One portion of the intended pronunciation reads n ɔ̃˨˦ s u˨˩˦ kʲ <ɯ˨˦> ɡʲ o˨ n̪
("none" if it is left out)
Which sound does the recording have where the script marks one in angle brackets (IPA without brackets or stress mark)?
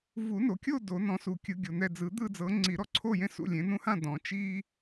ɯ˨˩˦